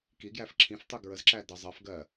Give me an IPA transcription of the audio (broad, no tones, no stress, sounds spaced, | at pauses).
k i ɡ j æ f ǁʰ ĩ f tˤ u ɡ ɹ ə z ǁ æ d ə zˤ ɜ f ɡ ɜ